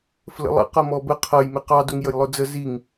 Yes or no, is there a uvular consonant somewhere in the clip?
yes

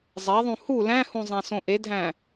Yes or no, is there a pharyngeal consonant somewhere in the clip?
no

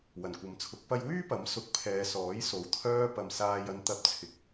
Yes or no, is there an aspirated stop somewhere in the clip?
yes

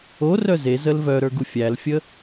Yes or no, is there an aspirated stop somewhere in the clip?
no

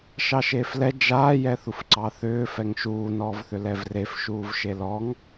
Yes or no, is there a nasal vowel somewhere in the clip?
no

